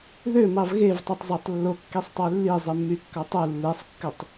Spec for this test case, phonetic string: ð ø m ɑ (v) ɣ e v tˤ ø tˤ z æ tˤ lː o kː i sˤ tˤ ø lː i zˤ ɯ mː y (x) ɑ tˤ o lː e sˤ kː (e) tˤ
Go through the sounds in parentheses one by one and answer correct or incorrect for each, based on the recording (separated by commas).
correct, incorrect, incorrect